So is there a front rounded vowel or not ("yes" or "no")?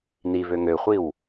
yes